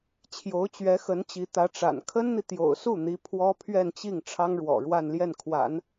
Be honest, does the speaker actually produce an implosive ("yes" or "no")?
no